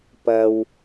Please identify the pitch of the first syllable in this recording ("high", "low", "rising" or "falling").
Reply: high